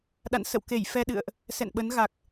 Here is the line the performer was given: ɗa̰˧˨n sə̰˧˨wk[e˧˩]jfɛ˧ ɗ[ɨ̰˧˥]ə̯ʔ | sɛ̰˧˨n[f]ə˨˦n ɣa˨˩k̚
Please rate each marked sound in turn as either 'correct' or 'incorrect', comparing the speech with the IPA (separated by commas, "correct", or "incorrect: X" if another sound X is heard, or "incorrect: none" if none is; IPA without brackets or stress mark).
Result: correct, incorrect: ɨ̰˧˨, incorrect: ɓ